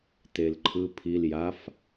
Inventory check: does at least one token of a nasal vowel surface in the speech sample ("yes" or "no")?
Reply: no